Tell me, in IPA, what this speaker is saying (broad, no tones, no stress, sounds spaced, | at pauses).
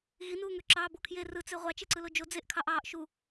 ɣ i n uː ŋ ø ǁ ɑː b o kʰ j e r ɯ t͡s e ʁʷ ɑ t͡ʃ e ǀ ɯ l o d͡ʒ o d͡z e ʔ kʰ ɑ ʔ ɑː ʔ ʃ u